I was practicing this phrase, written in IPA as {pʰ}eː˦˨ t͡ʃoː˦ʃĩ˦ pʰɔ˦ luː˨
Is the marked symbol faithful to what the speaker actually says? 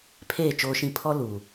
yes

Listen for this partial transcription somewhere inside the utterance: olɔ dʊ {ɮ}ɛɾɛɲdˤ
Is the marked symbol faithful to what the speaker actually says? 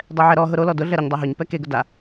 yes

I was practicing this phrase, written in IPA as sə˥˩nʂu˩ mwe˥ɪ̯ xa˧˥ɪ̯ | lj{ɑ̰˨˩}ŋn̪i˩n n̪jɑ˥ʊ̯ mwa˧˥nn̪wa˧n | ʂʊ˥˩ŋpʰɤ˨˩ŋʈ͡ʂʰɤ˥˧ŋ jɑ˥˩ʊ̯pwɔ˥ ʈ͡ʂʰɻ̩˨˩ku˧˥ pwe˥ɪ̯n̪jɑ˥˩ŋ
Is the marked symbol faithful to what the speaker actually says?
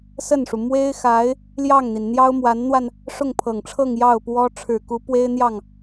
no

